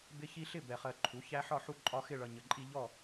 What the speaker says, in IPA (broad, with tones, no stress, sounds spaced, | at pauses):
b ɪ˦ ç i˦ ɬ ɪ˥˨ b ɛ˨ χ ɜ˨ ǃʰ u˩˥ ç æ˦ ħ ɒ˥˨ ħ u˦ ǃʼ ɒ˦ x ɪ˥˨ ɭ ʌ˨ ɲ ə˨ ǃʼ i˦ ʎ ɔ˥˨